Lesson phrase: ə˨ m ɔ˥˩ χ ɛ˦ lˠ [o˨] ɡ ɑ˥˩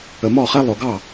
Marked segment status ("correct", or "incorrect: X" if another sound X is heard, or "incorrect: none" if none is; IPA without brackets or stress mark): correct